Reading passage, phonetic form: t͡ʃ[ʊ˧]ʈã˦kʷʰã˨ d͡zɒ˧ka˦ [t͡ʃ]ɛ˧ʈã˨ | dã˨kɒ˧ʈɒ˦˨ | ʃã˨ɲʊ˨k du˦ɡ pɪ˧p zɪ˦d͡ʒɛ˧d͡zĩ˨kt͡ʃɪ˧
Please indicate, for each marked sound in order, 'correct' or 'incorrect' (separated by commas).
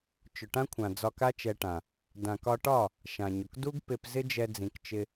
incorrect, correct